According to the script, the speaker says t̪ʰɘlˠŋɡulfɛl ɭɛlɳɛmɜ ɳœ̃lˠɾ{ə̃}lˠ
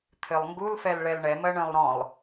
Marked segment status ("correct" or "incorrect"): incorrect